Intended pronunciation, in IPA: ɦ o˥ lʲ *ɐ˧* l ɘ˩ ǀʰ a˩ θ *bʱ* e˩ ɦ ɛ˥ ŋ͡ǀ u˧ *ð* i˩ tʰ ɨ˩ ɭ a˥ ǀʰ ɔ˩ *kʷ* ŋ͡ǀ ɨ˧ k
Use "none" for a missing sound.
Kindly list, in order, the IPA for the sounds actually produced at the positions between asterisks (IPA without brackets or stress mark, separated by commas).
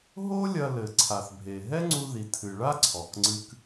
ɐ˧, bʱ, ð, k